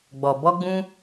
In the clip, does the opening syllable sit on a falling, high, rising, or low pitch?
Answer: low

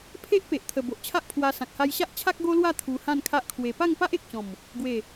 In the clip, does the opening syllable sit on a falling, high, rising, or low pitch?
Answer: high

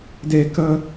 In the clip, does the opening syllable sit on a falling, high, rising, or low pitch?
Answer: high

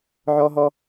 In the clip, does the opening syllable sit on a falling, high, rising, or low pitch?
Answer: high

